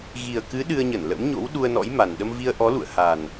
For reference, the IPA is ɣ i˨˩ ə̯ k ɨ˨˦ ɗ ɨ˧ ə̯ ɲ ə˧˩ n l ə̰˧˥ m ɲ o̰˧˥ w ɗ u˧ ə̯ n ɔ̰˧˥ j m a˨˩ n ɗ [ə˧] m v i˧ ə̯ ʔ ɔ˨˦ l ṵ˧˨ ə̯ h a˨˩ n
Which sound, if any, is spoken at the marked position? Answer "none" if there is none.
ə˧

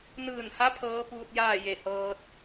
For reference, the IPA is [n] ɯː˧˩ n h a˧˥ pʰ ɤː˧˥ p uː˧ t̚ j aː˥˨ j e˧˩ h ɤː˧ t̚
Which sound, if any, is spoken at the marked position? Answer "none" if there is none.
n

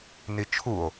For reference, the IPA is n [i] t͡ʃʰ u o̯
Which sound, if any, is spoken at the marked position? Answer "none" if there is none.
i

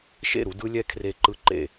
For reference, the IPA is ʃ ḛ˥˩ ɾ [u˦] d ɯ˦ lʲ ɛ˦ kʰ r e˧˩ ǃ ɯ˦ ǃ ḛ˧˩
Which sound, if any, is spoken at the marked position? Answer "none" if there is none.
u˦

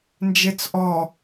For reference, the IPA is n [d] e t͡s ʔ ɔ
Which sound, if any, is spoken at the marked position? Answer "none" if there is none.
d͡ʒ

